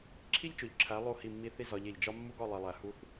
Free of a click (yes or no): no